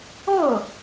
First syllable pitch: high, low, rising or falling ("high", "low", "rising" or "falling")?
falling